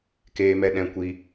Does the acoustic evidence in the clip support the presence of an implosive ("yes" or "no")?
yes